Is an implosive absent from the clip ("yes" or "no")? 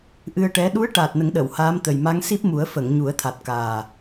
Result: no